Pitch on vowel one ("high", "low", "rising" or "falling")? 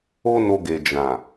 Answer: high